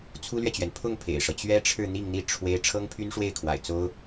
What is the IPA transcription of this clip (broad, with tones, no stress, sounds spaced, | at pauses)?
t͡sʰ u˥ l ɥ ɛ˨ t͡ɕ ɥ ɛ˩ n pʰ ʊ˥˩ ŋ pʰ ḛ˨˩ ɪ̯ ʂ ɤ˦ t͡ɕ ɥ ɛ˥ ʈ͡ʂʰ ɻ̩˥˧ n̪ i˥˧ ŋ n̪ i˥˩ ʈ͡ʂʰ w e˥ ɪ̯ ʈ͡ʂʰ ɤ˥ ŋ pʰ y˥ n ʂ w e˥˩ ɪ̯ kʰ w a̰˨˩ ɪ̯ t͡s o˥ ʊ̯